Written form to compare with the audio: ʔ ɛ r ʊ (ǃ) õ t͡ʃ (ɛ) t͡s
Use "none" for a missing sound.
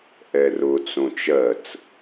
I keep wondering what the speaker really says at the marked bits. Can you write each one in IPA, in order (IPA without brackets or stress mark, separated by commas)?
t͡s, ɜ